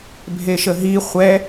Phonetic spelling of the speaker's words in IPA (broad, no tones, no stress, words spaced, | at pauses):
bʱeʃəɦi χʷɛ